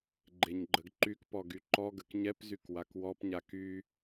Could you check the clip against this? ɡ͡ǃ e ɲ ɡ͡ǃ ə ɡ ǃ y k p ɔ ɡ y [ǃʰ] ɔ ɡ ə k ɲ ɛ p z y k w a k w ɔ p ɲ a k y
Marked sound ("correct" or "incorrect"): incorrect